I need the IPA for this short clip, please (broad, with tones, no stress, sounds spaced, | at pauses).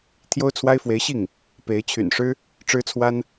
t̪ʰ j o˥ ʊ̯ t͡sʰ w a˥ ɪ̯ f w e˧˥ ɪ̯ ɕ i˥˩ ŋ | p e˧˥ ɪ̯ t͡ɕʰ y̰˨˩ n ʂ ɻ̩˥ | ʈ͡ʂ ɻ̩˥ t͡sʰ w a˥ n